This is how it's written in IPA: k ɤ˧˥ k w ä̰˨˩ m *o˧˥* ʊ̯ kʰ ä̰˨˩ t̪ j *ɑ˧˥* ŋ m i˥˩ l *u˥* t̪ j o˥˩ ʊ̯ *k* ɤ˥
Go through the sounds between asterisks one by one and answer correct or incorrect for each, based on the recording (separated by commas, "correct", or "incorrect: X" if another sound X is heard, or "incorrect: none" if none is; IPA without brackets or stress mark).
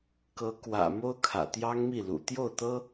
incorrect: o˥, incorrect: ɑ˥, incorrect: ṵ˨˩, incorrect: t̪